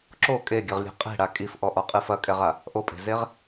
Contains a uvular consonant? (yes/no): yes